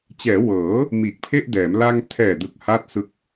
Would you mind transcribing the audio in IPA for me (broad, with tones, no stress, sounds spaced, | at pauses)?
t͡ɕ ɛː˩˦ w ɤː˩˦ | m iː˨˩ k̚ pʰ e˥˩ ʔ d ɛː˩˦ m l a˧ ŋ tʰ ɛː˨˩ d ɯ˨˩ k̚ h a˥˩ t̚ s ɯ˦˥ k̚